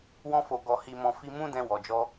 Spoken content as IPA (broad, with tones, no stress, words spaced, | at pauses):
wɔ̃˧fo˨ ɡɔ˨hi˨mɔ̃˨ fi˧mũ˦dɛ̃˧ wɔ˨d͡ʒɔ˧